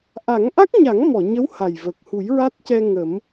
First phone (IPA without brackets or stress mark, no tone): ʔ